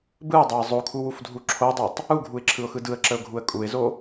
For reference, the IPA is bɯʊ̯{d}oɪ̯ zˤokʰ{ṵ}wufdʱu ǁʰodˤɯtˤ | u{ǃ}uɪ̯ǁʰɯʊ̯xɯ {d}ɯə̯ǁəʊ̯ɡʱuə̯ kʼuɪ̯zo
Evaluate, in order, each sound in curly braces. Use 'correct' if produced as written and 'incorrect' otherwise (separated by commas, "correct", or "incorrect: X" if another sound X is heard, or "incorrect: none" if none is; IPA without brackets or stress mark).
incorrect: dˤ, incorrect: u, incorrect: ɡʱ, correct